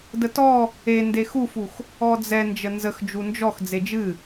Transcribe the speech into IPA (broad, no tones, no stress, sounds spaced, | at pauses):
d ə t ɔ | e n d e x u f u x | ɔ d͡z ɛ n d͡ʒ ə n z ə x d͡ʒ u n d͡ʒ ɔ x d͡z e d͡ʒ ɨ